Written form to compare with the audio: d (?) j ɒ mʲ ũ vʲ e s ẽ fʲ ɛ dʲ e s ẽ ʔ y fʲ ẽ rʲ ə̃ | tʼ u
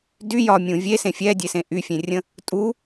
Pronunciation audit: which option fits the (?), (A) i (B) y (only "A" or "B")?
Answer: B